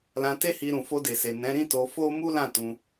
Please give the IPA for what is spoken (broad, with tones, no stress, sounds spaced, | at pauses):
l ã˧ t e˦ h i˧ ɾ ũ˨ f o˧ d e˨ s e˨ n ɛ̃˨˦ ɾ ĩ˦ t o˧ f o˦ m u˦ l ã˦˨ t ũ˧